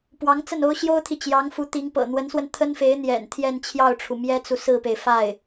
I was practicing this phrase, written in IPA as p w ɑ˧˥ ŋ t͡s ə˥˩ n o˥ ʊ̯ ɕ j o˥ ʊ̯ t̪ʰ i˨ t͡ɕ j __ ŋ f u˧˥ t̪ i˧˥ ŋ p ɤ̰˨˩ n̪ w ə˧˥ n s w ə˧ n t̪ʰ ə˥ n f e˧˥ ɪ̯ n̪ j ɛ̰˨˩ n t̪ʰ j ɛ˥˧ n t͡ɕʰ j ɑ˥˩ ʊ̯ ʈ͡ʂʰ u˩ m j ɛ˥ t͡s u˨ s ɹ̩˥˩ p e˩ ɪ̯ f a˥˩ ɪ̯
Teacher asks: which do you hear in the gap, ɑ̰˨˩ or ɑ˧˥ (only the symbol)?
ɑ˧˥